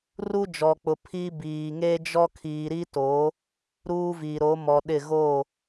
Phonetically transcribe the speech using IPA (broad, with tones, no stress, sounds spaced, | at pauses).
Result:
r u˦ d͡ʒ ɔ˨ k͡p ʊ˨ pʰ i˦ b iː˨ ŋ e˦ d͡ʒ ɔ˦ kʰ iː˨ ɾ i˦ t oː˨˦ | ɾ uː˦ v iː˨ ɾ o˨˦ m ɔ˨ ɗ ɪ˦˨ ɣ oː˦˨